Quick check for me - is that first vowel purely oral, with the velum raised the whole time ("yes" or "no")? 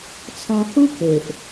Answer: no